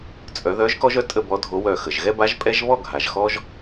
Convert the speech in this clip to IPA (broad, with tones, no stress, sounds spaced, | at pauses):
t͡sʼ œ˨˩˦ ð œ˨˥ ʒ k ɔ˦ ʒ œ˨˥ tʼ ə˥˨ b ɔ˨˥ dʱ o˨˥ w œ˧˩ x ə˩ ʒ ɣ ɛ˦ b a˨˥ ʒ pʼ ɛ˦ ʒ β ɔ˥˨ ɡʱ a˩ ʒ x ɔ˦ ʒ